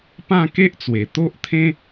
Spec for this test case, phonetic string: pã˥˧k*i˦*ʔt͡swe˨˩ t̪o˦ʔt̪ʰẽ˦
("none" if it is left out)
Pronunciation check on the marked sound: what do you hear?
e˦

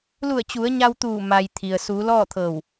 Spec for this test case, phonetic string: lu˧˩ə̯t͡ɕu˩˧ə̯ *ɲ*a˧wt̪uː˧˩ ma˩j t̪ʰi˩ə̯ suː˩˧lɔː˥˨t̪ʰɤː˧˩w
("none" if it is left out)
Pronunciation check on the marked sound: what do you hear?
ɲ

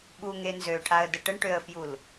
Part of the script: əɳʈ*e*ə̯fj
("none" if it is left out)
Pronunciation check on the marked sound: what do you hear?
ø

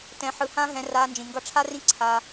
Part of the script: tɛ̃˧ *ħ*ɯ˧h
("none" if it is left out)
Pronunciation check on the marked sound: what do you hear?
ħ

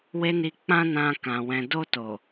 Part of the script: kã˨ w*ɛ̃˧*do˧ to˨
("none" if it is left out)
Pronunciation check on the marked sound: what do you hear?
ɛ̃˨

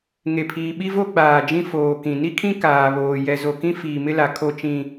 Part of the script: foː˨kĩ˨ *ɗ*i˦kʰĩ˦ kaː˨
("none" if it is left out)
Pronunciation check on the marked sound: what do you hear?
n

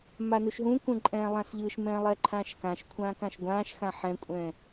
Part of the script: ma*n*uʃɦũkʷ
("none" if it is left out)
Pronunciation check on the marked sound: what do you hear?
n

